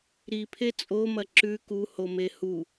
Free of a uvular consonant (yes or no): yes